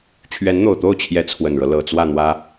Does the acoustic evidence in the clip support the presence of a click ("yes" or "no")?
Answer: no